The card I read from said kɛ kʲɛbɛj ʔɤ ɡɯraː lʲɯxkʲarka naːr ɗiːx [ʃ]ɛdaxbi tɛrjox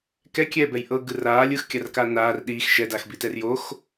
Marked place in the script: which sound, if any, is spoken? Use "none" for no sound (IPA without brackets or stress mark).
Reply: ʃ